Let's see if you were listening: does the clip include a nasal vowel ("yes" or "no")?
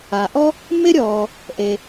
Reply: no